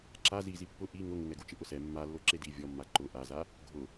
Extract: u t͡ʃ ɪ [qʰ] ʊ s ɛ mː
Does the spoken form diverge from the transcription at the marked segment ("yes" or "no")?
yes